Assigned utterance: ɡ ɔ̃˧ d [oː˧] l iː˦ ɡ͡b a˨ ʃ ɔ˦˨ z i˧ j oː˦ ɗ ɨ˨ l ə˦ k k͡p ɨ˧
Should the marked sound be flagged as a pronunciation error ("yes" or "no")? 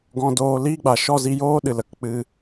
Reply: no